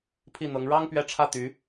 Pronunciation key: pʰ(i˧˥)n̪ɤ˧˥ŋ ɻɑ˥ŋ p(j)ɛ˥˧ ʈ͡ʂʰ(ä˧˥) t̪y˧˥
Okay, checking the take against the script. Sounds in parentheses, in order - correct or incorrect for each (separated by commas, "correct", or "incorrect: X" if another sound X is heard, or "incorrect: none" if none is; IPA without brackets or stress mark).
incorrect: i˥˩, incorrect: ɥ, incorrect: ä˥˩